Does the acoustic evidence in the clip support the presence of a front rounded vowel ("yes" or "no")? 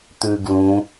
no